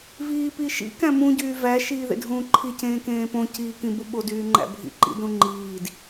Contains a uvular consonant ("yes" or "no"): no